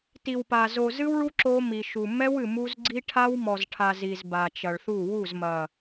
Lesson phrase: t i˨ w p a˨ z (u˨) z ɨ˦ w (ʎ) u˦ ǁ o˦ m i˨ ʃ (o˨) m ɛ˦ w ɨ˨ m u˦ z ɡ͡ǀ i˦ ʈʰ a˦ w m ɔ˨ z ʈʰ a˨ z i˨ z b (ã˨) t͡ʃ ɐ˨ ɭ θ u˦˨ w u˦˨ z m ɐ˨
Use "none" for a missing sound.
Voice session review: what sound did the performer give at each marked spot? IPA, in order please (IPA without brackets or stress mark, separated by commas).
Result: o˨, ɭ, u˨, a˨